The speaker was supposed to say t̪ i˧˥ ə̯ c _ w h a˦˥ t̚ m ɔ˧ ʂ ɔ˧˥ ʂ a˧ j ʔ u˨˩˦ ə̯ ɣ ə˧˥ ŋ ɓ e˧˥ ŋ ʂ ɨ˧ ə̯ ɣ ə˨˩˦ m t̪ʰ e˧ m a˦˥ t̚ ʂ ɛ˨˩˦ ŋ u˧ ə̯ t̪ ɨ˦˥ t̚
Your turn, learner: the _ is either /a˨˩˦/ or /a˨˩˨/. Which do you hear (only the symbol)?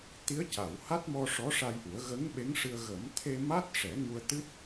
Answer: a˨˩˨